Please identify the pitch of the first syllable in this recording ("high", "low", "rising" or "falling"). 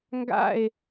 falling